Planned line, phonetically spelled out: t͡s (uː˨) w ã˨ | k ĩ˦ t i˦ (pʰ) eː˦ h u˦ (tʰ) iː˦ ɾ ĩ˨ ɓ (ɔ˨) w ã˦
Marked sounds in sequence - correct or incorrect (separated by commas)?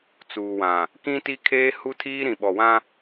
correct, incorrect, correct, correct